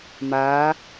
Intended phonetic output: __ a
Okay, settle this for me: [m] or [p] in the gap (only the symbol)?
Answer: m